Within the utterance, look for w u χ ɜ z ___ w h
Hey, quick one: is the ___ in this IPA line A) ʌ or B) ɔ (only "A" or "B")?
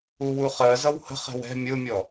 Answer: A